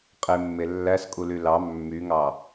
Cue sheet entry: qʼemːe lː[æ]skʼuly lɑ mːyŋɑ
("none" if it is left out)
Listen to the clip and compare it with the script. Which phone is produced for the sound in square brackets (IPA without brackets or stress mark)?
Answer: æ